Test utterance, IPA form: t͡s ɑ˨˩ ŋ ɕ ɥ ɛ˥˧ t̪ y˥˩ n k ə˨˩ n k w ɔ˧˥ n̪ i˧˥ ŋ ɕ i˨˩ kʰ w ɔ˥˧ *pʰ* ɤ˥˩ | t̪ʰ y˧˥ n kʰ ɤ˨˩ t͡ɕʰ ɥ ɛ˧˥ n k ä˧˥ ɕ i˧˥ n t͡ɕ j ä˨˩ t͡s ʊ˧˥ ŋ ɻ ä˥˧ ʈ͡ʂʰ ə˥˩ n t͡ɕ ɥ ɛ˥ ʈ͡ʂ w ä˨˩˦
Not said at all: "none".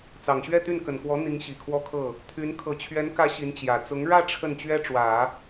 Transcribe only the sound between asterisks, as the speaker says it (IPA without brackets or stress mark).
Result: kʰ